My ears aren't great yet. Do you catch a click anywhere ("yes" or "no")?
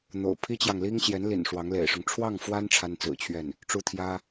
no